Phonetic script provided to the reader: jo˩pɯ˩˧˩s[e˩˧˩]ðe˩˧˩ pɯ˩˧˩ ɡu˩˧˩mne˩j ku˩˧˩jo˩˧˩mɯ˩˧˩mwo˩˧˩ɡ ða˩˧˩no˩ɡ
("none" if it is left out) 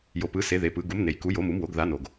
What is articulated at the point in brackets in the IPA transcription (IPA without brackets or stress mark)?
e˩˧˩